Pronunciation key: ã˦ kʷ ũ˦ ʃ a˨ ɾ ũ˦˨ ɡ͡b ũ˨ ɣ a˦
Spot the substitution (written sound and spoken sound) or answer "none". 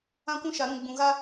none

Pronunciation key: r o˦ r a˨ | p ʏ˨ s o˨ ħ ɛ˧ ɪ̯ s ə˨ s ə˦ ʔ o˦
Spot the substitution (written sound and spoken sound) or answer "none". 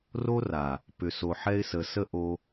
none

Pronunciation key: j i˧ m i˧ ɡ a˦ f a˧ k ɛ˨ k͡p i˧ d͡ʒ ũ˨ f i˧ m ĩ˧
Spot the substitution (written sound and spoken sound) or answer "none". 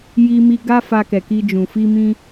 k͡p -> k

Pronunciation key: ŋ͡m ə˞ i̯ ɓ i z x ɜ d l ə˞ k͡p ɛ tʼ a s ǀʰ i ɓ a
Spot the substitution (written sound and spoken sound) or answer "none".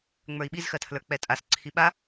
d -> tʰ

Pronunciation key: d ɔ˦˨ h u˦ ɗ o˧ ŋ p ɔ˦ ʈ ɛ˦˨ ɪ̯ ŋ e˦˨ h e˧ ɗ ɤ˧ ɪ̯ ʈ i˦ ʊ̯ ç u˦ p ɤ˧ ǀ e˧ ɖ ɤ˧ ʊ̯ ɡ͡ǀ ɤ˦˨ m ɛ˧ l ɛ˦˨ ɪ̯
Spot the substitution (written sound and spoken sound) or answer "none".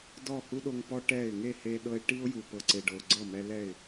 ç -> j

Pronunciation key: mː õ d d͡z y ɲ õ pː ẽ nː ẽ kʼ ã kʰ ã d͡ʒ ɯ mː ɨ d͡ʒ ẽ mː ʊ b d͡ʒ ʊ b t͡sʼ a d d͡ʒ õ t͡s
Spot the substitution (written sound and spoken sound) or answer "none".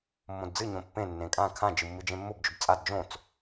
y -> ɨ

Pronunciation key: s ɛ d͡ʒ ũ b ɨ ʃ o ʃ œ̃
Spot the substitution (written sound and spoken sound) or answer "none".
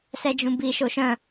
ɨ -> i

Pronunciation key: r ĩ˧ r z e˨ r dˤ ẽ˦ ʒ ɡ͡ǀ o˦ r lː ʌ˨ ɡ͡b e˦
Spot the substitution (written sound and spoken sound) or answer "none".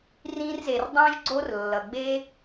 none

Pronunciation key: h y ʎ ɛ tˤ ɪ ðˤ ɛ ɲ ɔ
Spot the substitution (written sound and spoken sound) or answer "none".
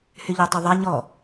ɪ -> y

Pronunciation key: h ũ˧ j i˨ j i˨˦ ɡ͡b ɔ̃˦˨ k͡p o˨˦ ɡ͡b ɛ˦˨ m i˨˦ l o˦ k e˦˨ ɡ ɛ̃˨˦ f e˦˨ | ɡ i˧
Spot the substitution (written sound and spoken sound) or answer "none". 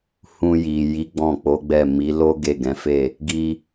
k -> ɡ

